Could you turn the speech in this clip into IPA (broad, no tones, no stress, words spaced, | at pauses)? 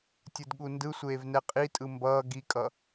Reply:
tʲɯdɠundɯsʷeːv nɛqʼitʼɯ mbʌː ɡikʼʌ